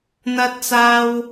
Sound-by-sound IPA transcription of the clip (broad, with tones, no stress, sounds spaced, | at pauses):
n̪ ɐ˧ t̚ t͡s aː˧ w